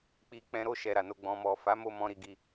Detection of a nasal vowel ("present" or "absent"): present